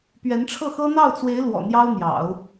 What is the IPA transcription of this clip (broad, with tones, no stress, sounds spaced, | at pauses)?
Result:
p ɥ ɛ˧˥ n ʈ͡ʂʰ ɤ˥˩ x ɤ˥ n̪ ɑ˥˩ ʊ̯ t͡s w e˧˥ ɪ̯ l w ɔ̰˨˩ n̪ j ɑ˥ ʊ̯ n̪ j ɑ̰˨˩˦ ʊ̯